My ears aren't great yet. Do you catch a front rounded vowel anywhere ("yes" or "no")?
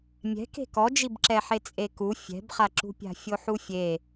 no